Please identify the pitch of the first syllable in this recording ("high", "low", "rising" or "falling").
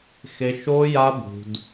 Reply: high